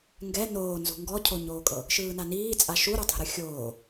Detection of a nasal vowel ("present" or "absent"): absent